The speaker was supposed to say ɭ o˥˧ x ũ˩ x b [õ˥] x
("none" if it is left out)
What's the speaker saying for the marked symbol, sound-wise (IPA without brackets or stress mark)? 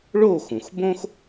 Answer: õ˥